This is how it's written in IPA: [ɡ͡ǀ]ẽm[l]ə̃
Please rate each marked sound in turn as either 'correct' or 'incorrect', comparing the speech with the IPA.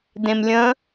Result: incorrect: d, incorrect: lʲ

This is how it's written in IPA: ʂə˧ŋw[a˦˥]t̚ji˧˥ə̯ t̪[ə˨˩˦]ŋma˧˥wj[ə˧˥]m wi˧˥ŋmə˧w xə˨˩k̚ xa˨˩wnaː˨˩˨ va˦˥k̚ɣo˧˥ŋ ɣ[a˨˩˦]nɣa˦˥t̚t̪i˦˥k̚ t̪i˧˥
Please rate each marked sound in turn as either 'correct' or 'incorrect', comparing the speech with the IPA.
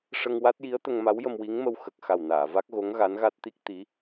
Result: correct, incorrect: ə˧, incorrect: ə˧, incorrect: a˧˥

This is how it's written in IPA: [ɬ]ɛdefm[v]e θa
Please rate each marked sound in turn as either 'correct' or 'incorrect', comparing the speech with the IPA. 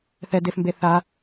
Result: incorrect: θ, incorrect: b

